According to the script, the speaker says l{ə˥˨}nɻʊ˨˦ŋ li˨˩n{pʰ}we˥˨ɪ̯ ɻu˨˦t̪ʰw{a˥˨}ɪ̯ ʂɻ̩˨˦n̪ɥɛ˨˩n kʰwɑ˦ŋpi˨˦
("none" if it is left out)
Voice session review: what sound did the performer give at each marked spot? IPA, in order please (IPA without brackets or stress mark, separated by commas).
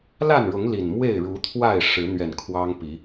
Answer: a˥˨, m, a˥˨